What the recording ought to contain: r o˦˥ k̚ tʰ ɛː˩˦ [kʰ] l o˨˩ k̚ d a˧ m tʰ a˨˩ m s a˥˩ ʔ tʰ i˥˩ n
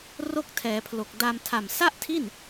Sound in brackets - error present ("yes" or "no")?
yes